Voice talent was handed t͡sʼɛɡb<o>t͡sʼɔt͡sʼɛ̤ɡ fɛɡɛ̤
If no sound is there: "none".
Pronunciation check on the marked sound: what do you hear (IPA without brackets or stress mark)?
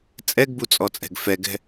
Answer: u